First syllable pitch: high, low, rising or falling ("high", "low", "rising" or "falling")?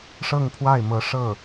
falling